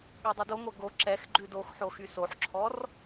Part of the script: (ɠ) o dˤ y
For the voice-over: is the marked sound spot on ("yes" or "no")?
yes